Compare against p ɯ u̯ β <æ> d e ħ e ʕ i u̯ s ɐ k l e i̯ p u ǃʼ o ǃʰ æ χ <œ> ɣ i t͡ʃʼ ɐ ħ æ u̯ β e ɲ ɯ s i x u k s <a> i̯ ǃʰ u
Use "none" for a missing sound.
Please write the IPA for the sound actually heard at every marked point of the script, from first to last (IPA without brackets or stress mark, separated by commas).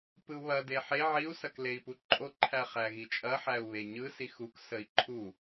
ɐ, æ, ə